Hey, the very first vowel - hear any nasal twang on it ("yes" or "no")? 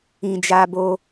yes